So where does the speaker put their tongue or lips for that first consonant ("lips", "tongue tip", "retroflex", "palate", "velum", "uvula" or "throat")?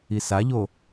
tongue tip